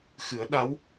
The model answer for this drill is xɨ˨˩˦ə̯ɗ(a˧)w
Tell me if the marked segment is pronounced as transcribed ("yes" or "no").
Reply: no